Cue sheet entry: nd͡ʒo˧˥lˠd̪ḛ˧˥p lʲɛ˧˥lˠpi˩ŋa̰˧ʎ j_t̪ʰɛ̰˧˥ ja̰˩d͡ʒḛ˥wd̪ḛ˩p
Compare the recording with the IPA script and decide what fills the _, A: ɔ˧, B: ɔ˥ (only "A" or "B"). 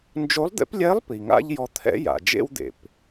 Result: A